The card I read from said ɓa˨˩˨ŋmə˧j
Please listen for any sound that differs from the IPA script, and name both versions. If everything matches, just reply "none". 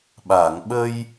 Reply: m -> ɓ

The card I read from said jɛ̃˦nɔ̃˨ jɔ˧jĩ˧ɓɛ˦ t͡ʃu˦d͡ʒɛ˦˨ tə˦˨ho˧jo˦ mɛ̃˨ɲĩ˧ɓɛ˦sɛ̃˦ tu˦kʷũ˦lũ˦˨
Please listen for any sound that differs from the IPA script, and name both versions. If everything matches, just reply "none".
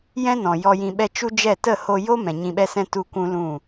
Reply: none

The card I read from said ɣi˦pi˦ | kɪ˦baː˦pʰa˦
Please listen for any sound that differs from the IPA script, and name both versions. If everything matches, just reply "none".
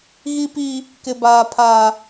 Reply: none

